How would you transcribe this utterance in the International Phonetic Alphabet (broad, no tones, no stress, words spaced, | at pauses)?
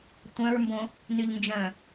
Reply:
tʷœ̃ɹmbõ | nyʎnd͡ʒœ̃